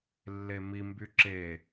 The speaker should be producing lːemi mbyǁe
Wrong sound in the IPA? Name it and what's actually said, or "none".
none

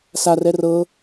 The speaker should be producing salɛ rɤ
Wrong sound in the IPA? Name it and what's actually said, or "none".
l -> r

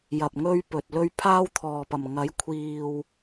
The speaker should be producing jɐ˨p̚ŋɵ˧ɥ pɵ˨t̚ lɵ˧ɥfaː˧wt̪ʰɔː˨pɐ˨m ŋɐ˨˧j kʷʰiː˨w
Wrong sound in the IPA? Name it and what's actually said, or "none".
f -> pʰ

